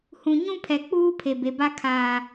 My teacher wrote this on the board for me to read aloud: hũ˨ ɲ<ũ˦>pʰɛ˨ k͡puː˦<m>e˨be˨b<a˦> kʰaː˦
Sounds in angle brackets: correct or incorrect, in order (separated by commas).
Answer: correct, incorrect, correct